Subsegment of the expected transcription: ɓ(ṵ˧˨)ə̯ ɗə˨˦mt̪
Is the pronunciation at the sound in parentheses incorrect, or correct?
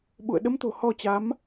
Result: correct